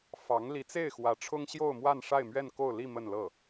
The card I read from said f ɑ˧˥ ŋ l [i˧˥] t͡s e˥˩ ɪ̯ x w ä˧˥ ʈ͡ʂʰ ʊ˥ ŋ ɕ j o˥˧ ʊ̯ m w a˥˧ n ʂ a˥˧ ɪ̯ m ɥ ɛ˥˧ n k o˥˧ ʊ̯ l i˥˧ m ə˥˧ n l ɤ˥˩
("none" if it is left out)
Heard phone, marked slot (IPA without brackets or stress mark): i˧˥